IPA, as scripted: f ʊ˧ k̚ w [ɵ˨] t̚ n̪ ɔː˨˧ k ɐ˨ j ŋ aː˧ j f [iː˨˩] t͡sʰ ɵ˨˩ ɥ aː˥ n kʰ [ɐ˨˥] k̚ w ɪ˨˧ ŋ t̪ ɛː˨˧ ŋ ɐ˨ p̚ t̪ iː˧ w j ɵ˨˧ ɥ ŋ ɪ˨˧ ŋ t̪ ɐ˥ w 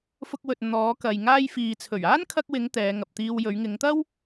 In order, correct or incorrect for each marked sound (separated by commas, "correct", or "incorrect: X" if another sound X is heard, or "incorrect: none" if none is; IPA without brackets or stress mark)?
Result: correct, incorrect: iː˨, incorrect: ɐ˧